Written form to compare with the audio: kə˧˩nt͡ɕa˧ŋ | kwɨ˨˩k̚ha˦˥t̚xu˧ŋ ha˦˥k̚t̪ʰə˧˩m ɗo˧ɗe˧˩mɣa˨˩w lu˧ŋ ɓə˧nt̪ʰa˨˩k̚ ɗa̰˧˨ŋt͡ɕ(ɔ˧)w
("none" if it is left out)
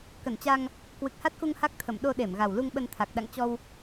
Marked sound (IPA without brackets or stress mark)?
ɔ˧